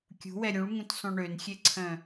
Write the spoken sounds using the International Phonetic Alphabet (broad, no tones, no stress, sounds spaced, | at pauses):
kʲ ṳ w ɛ ɾʲ ũ ɭ ŋ ũ t sˤ õ ɳ ø n xʲ e ǀʰ œ̃